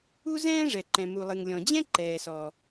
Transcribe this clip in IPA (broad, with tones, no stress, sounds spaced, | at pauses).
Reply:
u˥ z ɛ̃ː˥ ʐ ɛ˩ ǃ ɛ̃˩ m u˩ lˠ ɨ˩ ŋ lʲ ɔ̃˩ d͡ʑ ɛ̃˥ ǃ ɛː˩ s ɔ˩